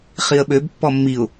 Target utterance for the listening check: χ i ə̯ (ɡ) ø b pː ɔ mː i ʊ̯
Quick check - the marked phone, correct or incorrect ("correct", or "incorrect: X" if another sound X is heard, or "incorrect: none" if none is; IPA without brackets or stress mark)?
incorrect: ɓ